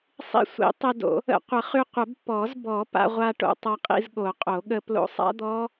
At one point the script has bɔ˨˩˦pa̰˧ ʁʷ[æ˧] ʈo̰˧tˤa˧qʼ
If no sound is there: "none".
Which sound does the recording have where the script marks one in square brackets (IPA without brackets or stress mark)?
a˧